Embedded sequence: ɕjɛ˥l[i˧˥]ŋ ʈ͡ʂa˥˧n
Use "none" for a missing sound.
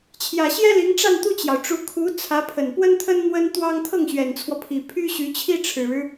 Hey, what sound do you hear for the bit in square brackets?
i˧˥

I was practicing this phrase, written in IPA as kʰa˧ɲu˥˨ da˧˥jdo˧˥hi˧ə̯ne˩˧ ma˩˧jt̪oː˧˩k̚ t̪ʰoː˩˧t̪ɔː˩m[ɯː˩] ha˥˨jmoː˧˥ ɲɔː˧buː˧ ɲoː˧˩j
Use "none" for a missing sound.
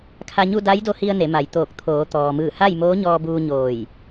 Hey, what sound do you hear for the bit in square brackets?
ɯː˧˩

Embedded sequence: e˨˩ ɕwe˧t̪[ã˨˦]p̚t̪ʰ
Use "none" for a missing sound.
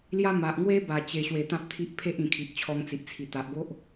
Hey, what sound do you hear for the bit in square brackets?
ã˦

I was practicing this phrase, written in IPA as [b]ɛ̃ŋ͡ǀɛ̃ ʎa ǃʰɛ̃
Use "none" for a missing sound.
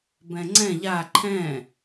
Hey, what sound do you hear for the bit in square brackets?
b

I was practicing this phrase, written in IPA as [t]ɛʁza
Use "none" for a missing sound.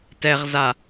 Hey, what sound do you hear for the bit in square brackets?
t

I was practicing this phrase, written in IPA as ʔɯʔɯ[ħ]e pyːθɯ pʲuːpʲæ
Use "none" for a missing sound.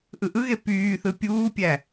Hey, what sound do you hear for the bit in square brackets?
ɣ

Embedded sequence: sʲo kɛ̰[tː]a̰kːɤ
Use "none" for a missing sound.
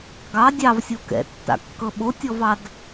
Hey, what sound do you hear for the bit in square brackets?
tː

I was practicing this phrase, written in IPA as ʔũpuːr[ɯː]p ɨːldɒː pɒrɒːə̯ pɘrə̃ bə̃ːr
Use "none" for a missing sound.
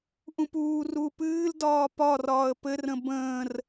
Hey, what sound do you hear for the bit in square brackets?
uː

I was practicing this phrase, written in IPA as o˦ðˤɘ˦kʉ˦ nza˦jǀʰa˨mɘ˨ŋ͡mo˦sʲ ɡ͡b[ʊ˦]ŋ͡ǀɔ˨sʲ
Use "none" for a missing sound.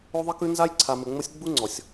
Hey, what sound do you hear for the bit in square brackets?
u˦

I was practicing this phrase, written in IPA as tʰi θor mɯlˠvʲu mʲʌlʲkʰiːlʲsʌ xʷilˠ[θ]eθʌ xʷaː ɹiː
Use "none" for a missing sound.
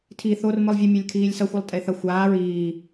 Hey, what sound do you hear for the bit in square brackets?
tʼ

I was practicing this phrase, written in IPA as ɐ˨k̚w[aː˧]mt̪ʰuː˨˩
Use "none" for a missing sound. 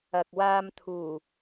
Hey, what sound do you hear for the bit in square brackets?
aː˧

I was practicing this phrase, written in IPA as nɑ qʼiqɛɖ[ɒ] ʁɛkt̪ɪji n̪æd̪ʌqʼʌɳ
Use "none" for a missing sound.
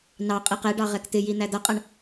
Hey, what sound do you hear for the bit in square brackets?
ɑ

